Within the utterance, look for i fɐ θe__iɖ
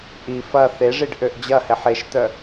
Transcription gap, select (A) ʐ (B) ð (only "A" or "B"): A